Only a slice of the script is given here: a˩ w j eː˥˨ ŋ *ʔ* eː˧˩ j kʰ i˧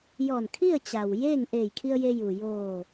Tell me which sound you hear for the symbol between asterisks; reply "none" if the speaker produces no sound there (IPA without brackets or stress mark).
ʔ